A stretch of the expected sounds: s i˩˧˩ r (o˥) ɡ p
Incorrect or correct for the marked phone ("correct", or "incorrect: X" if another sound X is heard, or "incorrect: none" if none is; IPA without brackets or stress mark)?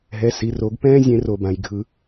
incorrect: o˨˩˦